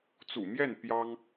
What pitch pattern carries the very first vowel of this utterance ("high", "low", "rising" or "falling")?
low